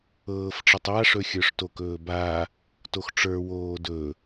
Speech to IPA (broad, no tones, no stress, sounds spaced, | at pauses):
ɤː f ʈ͡ʂ ɤ tˤ a ʂ ɵ xʲ ə˞ ʂ t o k ɵː b a | t o x ʈ͡ʂ ə˞ w oː d ɵ